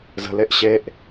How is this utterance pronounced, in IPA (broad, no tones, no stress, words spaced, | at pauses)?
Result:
zə̤leʔ ɕeʔ